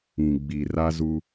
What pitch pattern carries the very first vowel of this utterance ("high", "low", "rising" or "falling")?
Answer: low